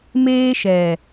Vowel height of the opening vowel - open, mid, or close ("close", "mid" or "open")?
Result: mid